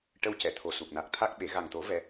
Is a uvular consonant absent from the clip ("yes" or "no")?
yes